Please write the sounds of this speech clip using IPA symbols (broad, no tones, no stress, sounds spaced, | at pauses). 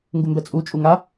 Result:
ŋ ɡ u m b ɛ t͡sʼ u t͡ʃʼ u ŋ a